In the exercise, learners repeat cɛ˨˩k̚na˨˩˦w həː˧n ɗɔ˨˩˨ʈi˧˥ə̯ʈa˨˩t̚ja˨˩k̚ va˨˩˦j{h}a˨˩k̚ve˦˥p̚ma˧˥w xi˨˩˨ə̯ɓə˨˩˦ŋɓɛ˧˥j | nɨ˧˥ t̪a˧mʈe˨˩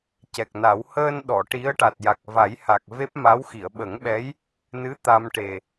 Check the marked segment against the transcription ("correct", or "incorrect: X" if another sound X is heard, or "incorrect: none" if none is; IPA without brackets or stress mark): correct